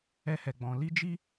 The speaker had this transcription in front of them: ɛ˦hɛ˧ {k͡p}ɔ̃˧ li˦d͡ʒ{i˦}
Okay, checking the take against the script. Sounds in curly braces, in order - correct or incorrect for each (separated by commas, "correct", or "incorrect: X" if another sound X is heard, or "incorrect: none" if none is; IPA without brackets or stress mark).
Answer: incorrect: ɡ͡b, correct